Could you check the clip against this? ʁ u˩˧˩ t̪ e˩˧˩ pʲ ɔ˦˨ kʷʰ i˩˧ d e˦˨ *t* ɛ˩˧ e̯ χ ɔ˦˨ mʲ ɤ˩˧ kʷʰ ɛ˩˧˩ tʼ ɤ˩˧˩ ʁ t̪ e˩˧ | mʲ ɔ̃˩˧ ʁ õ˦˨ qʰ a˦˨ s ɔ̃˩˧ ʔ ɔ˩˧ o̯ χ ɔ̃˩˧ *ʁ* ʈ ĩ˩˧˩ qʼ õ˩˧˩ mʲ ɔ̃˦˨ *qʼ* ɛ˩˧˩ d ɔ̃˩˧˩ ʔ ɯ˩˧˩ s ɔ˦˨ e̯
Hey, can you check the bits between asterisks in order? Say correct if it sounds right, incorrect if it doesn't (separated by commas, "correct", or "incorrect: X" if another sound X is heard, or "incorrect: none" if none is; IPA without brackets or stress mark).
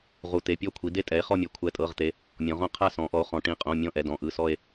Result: incorrect: tʼ, incorrect: none, incorrect: ʔ